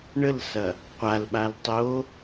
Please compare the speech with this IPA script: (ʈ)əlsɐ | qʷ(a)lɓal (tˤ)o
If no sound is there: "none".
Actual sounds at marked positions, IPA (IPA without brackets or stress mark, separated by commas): ɳ, a, tˤ